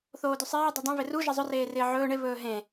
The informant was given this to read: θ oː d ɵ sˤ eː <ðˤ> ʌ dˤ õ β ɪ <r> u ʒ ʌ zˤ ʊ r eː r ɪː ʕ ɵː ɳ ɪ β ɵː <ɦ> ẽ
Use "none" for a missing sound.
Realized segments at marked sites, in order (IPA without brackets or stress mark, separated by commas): dˤ, r, ɦ